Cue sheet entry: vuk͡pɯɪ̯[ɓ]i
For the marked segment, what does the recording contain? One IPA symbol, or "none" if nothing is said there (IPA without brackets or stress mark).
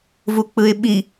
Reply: ɓ